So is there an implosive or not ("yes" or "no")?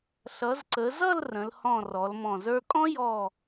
no